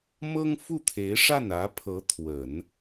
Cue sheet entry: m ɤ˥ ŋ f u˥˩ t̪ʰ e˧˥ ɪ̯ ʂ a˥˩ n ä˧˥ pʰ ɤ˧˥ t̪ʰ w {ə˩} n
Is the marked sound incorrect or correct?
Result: incorrect